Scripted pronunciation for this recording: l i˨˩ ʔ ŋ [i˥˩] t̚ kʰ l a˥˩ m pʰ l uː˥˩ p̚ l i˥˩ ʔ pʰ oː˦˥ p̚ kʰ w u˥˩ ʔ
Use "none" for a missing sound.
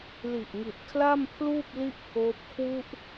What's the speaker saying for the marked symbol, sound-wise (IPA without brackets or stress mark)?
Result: i˨˩